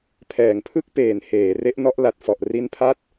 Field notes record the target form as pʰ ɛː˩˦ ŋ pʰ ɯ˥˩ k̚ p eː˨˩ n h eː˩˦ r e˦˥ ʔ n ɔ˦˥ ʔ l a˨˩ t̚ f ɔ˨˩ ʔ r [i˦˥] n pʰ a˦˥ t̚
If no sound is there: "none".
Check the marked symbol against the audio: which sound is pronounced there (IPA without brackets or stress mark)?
i˧